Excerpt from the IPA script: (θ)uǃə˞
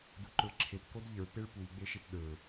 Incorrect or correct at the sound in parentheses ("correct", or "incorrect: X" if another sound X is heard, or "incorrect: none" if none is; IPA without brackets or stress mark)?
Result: incorrect: d